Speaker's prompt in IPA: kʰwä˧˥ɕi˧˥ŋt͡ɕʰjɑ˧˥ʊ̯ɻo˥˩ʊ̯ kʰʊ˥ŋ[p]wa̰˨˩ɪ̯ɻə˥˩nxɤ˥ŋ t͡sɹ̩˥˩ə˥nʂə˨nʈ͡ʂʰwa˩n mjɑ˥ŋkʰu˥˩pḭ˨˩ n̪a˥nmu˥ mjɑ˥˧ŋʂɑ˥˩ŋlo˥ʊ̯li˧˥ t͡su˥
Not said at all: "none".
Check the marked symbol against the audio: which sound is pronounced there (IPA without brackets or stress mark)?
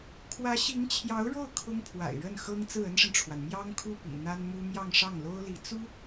pʰ